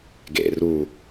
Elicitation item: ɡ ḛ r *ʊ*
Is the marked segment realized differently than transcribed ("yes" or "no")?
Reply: yes